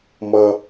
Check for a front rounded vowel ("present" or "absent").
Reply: absent